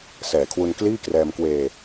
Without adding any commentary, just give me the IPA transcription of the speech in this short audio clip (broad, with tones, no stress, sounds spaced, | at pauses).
s ɛː˨˩ kʰ w u˧ n k l iː˥˩ k r ɛː˧ m k w eː˧